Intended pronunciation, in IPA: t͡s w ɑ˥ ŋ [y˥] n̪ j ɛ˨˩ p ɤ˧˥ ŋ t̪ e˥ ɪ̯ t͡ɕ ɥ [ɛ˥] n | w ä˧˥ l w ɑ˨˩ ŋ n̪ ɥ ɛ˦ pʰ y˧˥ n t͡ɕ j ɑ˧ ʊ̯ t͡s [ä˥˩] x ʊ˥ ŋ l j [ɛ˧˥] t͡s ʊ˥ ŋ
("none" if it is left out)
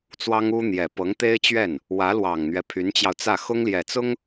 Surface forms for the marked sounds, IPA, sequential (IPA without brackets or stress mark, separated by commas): u˥, ɛ˥˩, ä˥˩, ɛ˨˩